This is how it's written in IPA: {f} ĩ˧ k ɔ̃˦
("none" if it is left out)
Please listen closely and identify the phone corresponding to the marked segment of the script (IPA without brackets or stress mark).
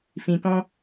f